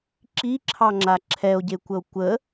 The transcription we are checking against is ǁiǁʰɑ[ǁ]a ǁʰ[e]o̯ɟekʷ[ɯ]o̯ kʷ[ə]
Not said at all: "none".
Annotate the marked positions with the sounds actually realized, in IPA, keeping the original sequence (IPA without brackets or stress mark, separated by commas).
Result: ŋ͡ǁ, ɛ, ə, ə